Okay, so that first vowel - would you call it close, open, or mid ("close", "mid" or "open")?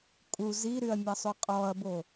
close